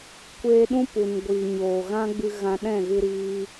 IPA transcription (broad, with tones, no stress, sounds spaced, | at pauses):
kʷ eː˧ ɗ ũ˦ p u˨ n ɡʷ iː˨ ɲ oː˨ ɣ ã˦ ɡ͡b ɨ˧ ɣ ã˧ ɗ ɛ̃˦˨ ɣ ɨ˧ ɾ iː˧